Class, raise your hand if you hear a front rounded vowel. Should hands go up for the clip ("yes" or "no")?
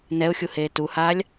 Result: no